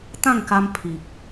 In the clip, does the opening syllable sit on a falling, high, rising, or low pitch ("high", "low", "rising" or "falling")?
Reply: falling